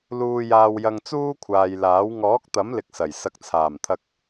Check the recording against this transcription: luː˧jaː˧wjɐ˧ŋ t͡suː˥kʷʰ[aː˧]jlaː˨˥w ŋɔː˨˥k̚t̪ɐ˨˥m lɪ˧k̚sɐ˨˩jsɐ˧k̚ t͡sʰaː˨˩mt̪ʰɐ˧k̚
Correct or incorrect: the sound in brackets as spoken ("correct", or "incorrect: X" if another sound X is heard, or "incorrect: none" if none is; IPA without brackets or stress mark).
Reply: incorrect: aː˨